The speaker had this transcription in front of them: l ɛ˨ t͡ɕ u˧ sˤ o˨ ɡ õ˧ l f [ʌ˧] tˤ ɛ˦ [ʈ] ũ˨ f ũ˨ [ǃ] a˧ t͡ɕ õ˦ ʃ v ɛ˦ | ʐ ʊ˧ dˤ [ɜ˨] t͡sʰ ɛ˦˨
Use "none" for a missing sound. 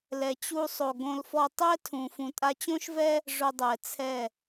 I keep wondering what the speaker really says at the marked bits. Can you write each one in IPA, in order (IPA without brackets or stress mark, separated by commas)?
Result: ɔ˧, tʰ, tʼ, ɛ˨